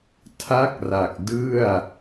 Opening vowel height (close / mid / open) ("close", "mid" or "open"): open